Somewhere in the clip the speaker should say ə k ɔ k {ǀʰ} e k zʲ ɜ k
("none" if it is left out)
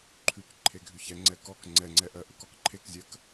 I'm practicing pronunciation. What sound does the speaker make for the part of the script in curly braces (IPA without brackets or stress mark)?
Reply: ǃʰ